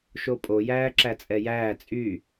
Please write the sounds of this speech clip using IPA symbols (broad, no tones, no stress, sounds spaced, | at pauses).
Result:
ʃ o pʼ o j æː ǁ æ t͡sʼ ɛ j æː t͡sʼ y